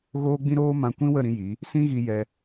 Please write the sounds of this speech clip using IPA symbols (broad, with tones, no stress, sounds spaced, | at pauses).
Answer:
ɣ oː˦ ɡ͡b ĩ˦ ɾ oː˦ m ã˧ kʷ ĩ˦ w ə˦˨ ɾ ĩ˧ j i˨˦ | s ĩ˦ ɣ i˧ j ɛ˧